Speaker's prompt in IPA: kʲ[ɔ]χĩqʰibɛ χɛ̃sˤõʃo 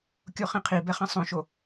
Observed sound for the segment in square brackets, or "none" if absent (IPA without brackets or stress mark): o